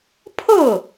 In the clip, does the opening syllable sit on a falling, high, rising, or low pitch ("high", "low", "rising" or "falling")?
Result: falling